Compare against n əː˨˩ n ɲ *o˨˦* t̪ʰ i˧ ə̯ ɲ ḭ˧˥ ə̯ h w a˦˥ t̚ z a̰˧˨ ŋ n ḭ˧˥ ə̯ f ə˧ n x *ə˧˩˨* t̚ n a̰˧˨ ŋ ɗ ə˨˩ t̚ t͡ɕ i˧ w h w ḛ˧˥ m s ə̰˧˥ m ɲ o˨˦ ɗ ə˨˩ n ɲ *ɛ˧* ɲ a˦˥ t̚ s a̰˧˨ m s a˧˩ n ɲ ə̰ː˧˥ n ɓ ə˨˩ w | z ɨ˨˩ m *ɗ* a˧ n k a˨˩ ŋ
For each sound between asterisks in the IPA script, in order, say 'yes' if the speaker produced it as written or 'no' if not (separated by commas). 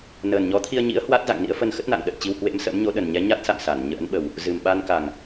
no, no, no, no